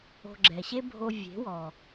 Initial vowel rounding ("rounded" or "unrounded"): rounded